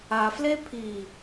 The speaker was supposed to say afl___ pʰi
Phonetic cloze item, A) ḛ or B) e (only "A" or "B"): B